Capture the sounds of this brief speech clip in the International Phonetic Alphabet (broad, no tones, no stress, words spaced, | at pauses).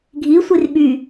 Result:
ɡʱi sʷirɓy